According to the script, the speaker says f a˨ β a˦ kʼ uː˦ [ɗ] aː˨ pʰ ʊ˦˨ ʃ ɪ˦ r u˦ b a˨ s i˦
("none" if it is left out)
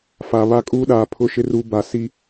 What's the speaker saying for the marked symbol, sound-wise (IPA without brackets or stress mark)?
ɗ